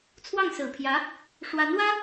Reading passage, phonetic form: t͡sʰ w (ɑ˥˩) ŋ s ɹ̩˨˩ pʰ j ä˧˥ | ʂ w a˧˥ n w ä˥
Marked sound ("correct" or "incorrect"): correct